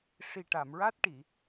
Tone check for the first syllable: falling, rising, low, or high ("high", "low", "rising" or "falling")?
low